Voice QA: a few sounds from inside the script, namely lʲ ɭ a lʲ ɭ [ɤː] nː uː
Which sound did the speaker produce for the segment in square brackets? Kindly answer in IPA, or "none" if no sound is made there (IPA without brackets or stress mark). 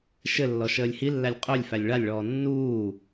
ɔː